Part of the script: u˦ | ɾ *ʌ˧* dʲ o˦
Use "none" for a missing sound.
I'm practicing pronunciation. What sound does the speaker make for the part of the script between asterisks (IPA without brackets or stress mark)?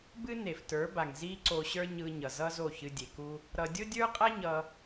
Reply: ʌ˧